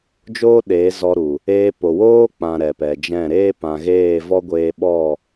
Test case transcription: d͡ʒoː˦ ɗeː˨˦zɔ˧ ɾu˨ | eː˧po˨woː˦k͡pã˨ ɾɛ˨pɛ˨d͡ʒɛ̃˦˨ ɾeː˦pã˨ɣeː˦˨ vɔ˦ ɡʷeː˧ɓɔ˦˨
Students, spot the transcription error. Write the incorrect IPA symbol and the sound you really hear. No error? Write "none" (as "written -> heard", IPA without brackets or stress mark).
none